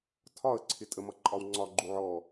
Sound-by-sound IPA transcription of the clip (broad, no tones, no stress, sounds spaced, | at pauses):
tʰ ɒ ə̯ ǀʰ ɪ tʼ ə m ʌ ǃʼ ɒ w ŋ͡ǀ ɒ ɡ͡ǃ u ʕ ɔ